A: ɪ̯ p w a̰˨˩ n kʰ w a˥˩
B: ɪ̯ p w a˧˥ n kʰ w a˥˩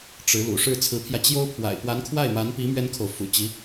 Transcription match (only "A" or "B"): B